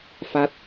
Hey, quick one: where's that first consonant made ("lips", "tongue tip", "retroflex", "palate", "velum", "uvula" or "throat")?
lips